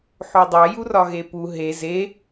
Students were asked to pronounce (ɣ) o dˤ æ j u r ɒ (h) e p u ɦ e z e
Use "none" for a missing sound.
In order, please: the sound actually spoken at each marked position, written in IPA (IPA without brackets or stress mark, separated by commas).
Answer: ħ, ɣ